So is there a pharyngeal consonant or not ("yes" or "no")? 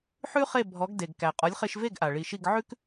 yes